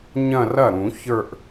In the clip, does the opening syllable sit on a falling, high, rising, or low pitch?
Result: falling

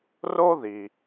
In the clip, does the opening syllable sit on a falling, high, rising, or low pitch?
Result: high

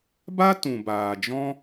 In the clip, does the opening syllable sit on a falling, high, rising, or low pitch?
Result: high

